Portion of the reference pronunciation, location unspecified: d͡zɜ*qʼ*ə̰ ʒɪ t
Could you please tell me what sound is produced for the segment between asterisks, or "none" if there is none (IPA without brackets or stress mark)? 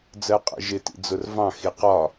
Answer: qʼ